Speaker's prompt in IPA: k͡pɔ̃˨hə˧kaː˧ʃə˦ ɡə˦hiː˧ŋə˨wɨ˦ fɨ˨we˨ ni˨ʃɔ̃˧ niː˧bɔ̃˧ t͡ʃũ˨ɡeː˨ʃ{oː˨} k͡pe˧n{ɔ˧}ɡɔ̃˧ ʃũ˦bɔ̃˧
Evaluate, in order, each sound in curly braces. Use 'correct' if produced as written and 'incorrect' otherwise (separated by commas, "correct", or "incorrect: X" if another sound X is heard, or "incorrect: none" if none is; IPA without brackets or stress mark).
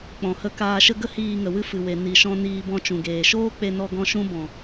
incorrect: oː˦, correct